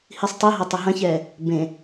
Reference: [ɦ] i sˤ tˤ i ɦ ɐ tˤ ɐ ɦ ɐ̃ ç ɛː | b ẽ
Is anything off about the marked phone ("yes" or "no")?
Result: yes